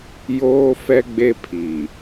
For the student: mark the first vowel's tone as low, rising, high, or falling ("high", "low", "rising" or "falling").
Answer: high